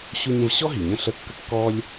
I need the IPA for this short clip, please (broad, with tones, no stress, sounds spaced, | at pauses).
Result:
ɕ u˧ ɲ ə̃˧ v ɕ ɔ˦ ɦ i˨ ɲ ə̃˦ ɬ ə˧ kː ə˦ kː ɔ˦ lʲ